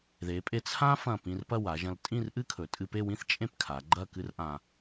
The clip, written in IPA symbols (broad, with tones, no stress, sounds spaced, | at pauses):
ð e˩˧ pʼ e˧ t͡sʰ ã˥ f ɐ̃˧˩ p ĩ˧ r p ɐ˥˧ w a˩˧ ʒ ɐ̃˧ l tʼ ĩ˥˧ r ʔ ɨ˥ kʰ ɵ˩˧ tʼ ɨ˧ p e˥˧ w ĩ˥ θ t͡ʃʼ ẽ˥˧ p kʰ a˩˧ ɡ͡ǃ ɐ˥˧ k ɨ˥ r ʔ ã˧